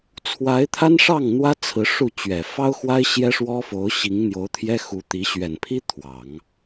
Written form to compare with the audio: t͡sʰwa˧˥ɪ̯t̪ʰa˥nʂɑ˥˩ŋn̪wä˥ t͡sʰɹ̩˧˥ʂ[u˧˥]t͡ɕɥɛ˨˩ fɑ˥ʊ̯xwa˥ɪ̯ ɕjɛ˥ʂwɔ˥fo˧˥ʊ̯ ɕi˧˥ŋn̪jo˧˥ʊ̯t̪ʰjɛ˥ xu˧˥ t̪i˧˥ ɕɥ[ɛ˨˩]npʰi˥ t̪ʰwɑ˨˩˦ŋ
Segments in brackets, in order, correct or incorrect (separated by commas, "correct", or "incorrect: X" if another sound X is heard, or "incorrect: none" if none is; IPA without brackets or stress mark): incorrect: u˥˩, correct